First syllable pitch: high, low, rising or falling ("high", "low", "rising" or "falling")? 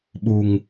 low